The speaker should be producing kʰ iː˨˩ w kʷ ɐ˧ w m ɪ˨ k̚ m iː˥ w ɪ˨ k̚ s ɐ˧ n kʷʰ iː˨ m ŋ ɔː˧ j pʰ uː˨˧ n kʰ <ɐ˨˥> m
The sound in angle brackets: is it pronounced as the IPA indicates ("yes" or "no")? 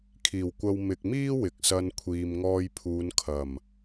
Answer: no